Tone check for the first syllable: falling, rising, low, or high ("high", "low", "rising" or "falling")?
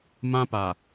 high